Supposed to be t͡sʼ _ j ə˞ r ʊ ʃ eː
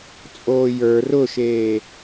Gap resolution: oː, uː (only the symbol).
oː